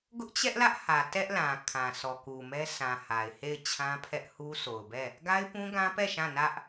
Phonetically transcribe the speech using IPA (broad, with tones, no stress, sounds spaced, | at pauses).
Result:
ɡ ʊ˦ ʔ t͡ɕ ɛ˦ ʔ l ä˦ ʔ h ä˨ t ɛ˦ ʔ l ã˨ kʰ ã˨ sʰ ɔ˨ k u˨ m ɛ˦ sʰ ã˨ h a˨ ɪ̯ h e˦˨ ɪ̯ t͡ɕʰ ã˦ pʰ ɛ˦ ʔ h u˦ sʰ o˨ ʊ̯ b ɛ˦˨ | ɡ a˦ ɪ̯ p ũ˦ ɡ ã˦ p ɛ˦˨ ʃ ã˦˨ n ä˦ ʔ